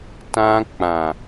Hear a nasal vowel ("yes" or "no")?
yes